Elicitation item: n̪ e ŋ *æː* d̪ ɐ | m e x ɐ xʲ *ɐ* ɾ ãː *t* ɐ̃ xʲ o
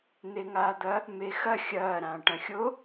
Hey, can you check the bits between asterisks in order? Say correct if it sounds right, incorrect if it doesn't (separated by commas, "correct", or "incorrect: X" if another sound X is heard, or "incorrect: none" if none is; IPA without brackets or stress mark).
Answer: incorrect: aː, incorrect: ɐː, incorrect: ʈ